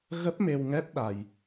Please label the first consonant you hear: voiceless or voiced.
voiced